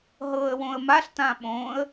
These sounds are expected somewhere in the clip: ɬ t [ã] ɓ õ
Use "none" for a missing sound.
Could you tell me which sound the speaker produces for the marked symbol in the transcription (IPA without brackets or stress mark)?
ã